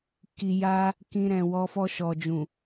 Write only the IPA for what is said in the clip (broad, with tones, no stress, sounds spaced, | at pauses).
k i˧ j a˦ | k ĩ˧ ɾ ɛ̃˨ w ɔ˧ f ɔ˧ ʃ ɔ˨ d͡ʒ ũ˨